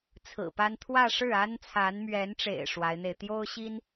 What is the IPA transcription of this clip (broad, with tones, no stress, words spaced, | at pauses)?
t͡sʰɹ̩˨˩pa˥n t̪ʰwä˥˧ʂɻ̩˥˩ a˥nt͡sʰa˧˥nmɥɛ˧˥nʈ͡ʂḛ˨˩ɪ̯ ʂwa˧˥ɪ̯n̪e˧ɪ̯ t̪jo˥ʊ̯ɕi˥n